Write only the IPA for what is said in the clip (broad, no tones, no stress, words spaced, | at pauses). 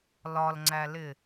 lɒlŋ͡ǀælɪ